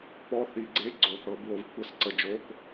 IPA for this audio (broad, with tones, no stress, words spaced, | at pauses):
pɔ˧˥˧θi˨˩˦ɡ͡ǀe˧˥˧ ɡ͡ǀo˨ θɤ˨˩˦bwo˨˦vkʷʰə˧˥˧sǀə˨ d͡ʒo˧˥˧k